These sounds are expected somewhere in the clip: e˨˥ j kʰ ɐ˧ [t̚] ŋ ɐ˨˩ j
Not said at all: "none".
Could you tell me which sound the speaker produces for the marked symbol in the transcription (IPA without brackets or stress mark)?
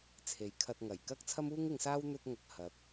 t̚